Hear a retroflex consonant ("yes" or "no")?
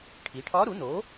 yes